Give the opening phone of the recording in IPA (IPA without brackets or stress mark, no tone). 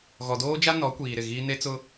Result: ɣ